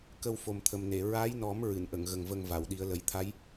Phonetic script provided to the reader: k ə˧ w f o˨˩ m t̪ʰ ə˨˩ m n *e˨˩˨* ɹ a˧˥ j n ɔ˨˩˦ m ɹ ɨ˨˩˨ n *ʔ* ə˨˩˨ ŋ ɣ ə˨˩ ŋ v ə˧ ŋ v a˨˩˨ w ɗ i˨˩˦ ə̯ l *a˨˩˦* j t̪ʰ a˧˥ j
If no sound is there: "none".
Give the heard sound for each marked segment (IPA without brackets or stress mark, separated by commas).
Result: e˨˩˨, ʔ, ə˨˩˦